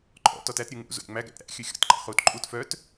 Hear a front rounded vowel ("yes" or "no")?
yes